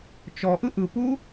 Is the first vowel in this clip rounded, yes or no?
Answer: yes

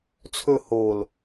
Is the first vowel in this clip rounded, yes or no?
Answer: yes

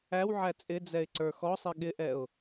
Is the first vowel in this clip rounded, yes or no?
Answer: no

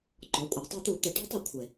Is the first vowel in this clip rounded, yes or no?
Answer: yes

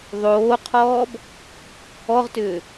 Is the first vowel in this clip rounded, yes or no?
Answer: yes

